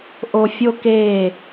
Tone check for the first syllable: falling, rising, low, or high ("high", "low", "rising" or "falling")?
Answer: high